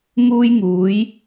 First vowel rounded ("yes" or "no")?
yes